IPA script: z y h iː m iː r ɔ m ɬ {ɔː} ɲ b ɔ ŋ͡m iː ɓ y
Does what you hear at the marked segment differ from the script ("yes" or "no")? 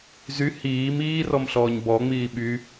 no